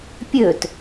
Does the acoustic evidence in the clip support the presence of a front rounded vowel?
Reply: yes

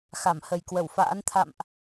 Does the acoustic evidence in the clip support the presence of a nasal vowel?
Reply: no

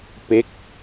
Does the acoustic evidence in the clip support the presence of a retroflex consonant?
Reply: no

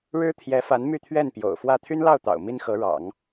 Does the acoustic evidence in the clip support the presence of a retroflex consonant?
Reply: yes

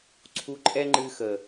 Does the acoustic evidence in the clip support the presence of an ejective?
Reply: yes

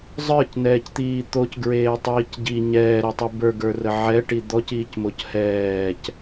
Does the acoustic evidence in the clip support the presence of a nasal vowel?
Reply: no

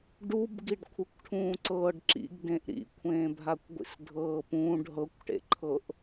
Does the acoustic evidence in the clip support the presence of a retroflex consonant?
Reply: yes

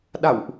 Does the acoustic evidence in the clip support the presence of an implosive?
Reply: yes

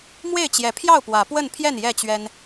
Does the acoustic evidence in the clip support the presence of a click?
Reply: no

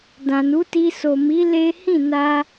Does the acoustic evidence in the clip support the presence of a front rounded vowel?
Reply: no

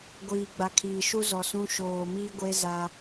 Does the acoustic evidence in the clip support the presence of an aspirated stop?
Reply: yes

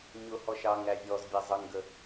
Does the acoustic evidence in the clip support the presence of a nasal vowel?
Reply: no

